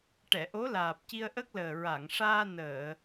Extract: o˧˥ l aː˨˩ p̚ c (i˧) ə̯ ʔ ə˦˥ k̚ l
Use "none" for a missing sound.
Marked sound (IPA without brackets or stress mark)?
i˧